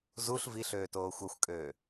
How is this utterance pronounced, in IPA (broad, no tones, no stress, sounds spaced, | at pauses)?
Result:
z u ɬ v i ɬ øː t oː xʷ ʌ xʷ kʼ øː